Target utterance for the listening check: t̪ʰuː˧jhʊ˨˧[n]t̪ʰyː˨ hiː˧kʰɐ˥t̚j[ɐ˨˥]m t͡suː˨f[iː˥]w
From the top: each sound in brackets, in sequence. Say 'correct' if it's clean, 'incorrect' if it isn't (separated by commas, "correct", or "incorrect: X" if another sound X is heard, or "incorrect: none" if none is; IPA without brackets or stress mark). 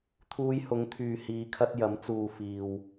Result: incorrect: ŋ, correct, incorrect: iː˨